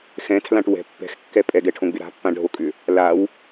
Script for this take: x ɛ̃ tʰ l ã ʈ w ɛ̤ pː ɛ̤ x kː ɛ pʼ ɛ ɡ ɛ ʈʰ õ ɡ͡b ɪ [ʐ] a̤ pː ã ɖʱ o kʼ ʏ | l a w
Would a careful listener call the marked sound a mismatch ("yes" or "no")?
yes